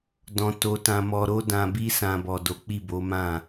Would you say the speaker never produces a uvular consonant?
yes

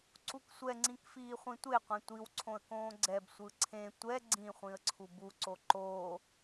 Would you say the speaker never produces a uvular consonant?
no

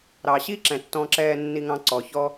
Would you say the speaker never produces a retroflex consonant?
yes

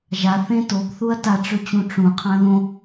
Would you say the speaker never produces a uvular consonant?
no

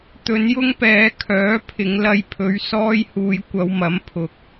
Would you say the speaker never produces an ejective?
yes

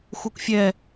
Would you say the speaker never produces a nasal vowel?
yes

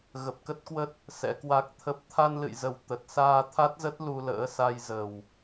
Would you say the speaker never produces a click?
yes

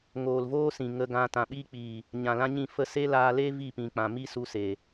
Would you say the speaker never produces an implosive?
no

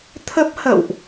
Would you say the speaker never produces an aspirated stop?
no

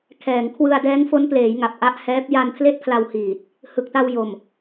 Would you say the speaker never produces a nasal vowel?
yes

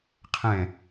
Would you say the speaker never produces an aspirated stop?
no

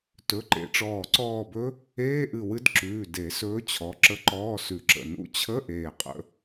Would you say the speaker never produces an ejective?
no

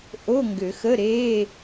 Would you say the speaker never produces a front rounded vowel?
no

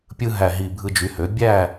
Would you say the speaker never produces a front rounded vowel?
no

